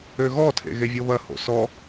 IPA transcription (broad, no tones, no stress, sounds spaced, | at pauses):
ø ɣ ɔ tʰ ḛ ɣ e vʲ ɤ β ɐ h o̰ s ɔ